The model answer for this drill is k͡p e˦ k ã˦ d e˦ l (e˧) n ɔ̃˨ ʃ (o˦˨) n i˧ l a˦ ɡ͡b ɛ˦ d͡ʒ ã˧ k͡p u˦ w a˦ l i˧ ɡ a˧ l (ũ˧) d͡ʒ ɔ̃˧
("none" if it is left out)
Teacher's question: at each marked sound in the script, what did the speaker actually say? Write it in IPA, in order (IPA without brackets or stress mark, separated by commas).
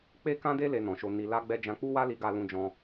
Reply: e˧, o˧, ũ˧